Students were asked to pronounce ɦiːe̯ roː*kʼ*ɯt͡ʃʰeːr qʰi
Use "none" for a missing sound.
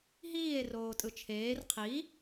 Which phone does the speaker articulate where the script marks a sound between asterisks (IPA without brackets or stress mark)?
tʼ